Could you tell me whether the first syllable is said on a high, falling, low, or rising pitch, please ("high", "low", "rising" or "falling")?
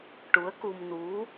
rising